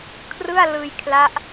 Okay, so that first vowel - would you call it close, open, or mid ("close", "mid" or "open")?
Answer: close